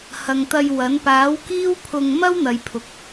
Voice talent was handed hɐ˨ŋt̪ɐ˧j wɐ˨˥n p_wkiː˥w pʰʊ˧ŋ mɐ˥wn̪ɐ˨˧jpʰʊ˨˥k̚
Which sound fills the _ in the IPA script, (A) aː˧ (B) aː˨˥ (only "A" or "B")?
B